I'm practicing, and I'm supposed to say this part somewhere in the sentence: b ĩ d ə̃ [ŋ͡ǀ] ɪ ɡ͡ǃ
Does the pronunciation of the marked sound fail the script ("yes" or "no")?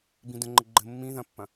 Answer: yes